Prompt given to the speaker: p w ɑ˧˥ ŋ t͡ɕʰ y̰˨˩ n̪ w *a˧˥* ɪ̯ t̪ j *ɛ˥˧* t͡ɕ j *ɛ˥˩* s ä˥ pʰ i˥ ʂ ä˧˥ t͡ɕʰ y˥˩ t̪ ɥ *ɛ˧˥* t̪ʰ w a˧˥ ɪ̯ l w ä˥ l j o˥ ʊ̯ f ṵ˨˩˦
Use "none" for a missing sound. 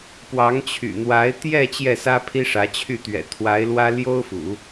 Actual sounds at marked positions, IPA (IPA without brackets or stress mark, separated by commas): a˧˥, ɛ˥˧, ɛ˥˩, ɛ̰˨˩